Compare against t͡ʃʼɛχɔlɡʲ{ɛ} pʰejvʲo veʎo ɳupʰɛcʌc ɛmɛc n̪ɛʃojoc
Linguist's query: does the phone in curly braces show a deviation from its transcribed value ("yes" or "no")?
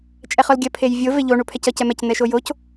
yes